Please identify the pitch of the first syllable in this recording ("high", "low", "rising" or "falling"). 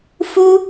high